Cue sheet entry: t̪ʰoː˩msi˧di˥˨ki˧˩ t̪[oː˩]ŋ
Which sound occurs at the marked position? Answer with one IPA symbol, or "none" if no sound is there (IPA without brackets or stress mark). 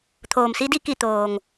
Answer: oː˩